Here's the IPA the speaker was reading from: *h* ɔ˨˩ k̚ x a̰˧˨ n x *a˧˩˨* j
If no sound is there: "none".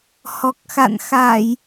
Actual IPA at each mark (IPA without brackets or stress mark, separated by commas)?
h, a˧˩˨